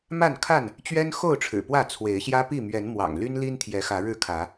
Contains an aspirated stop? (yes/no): yes